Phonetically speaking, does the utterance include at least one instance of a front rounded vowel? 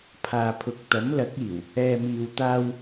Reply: no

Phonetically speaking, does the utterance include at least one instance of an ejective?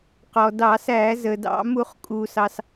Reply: yes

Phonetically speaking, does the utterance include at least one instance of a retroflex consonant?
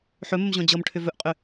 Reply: yes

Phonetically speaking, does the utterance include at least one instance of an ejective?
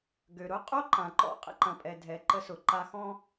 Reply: yes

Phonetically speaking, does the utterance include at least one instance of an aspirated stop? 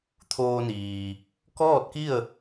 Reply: yes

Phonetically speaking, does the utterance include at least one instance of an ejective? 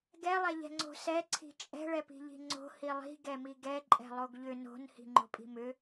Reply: yes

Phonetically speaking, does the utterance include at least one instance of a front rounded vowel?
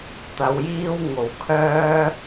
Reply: yes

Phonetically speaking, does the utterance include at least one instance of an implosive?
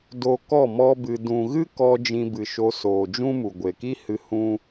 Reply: no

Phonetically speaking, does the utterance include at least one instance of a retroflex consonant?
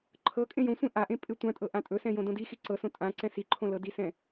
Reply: no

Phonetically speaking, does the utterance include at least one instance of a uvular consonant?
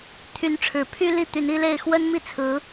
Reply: no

